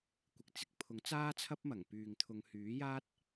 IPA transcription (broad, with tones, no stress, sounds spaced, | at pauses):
kʷ ɪ˨ k̚ t͡s ɪ˧ k̚ pʰ ʊ˨˥ ŋ t͡s aː˥ t͡sʰ ɐ˥ p̚ m ɐ˨˩ ŋ p yː˨ ŋ t̪ʰ ʊ˨˧ ŋ h yː˨˥ j aː˥ t̚